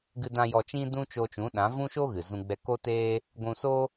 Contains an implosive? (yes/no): yes